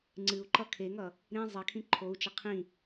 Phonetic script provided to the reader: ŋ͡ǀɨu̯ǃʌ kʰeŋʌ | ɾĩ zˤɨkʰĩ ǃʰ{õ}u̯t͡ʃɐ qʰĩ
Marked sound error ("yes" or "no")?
yes